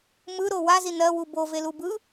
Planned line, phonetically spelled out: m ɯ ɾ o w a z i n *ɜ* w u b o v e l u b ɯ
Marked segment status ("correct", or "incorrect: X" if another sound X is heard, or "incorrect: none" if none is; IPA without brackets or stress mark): correct